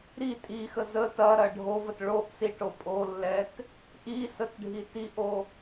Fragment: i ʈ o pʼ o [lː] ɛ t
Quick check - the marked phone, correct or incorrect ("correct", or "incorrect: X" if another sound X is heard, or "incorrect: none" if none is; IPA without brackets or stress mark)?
correct